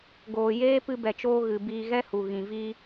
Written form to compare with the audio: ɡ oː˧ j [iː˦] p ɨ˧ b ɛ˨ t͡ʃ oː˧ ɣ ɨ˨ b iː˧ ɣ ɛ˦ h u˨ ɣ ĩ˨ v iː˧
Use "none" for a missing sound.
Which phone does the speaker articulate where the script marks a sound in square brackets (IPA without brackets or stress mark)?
eː˦